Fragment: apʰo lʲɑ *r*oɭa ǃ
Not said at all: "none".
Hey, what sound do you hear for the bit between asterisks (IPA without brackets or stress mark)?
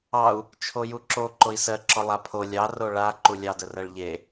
r